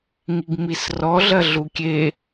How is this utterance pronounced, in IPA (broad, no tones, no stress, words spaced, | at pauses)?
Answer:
ŋiɡmisrɔ ɮɐɮukʲe